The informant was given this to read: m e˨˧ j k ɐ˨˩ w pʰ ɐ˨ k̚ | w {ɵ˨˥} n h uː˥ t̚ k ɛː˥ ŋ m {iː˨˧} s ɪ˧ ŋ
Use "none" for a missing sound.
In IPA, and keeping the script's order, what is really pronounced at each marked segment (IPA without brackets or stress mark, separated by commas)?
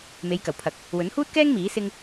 ɵ˨˥, iː˨˥